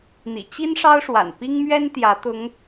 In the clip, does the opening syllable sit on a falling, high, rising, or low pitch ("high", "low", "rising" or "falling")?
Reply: low